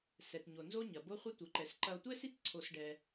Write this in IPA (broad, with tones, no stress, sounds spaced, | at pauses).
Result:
s ɛ˨ t ɲ o˨ n z o˦ ɲ ɐ˨ b o˦ χʷ ɐ˦ tʷ ɘ˨ ǃ ɛ˨ s ǃ ɐ˧ o̯ tʷ ɛ˦ s i˦ t ǀʰ o˧ s ɖ ɛ˧